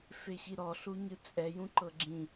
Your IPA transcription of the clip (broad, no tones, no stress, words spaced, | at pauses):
feɕiɾɔ ɬuɲɯt͡sʼɛ jũǃɤɡ͡ǁĩ